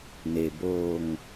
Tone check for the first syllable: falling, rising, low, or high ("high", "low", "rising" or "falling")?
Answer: low